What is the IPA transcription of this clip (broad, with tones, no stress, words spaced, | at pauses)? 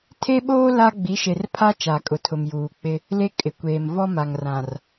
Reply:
tʰe˦ɓoː˦ la˦ ɡ͡bi˨˦ʃe˨r pʰa˦t͡ʃa˨ kʼʊ˨tʰʊ˨mjuː˨k͡pɪ˦ | le˦ kʼɪ˨kʷeː˨m vɔ˦ ma˨ŋrã˨r